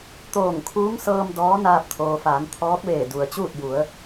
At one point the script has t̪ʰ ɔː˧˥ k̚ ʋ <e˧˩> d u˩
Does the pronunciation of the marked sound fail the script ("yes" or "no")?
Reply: yes